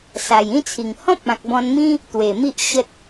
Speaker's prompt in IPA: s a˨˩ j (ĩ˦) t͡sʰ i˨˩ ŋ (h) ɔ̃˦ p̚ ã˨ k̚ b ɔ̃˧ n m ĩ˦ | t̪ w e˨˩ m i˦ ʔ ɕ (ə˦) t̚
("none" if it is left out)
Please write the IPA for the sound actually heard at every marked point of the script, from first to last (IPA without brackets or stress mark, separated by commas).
ĩ˦, h, ə˦